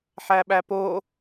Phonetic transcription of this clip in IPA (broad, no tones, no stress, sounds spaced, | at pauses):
ħ æ ɓ æ p o